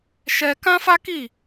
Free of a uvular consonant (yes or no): yes